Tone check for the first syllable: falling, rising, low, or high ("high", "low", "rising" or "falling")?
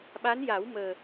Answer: rising